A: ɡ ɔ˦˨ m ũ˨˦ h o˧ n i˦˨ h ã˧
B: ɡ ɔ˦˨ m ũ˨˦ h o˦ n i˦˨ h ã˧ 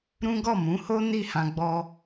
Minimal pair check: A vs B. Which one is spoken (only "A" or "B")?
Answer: B